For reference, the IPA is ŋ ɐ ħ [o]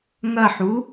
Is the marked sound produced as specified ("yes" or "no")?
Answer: no